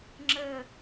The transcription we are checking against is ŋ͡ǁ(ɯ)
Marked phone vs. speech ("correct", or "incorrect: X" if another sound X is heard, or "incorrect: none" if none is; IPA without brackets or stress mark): incorrect: ə